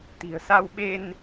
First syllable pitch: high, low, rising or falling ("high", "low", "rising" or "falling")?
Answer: low